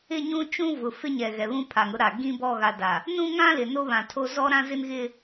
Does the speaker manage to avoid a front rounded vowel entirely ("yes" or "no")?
yes